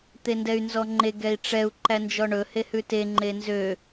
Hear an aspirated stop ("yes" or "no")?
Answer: no